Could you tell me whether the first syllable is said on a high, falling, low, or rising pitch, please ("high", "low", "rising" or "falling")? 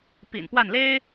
low